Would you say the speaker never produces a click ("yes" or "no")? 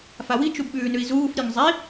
yes